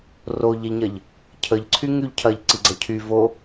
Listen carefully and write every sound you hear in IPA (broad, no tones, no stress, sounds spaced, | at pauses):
r o ʎ ɛ ʎ ɲ ɐ ʎ | cʰ ə ʎ ǀʰ y ŋ y ʎ cʰ ɐ ʎ ǀ i ɡ͡ǀ ɐ cʰ y v o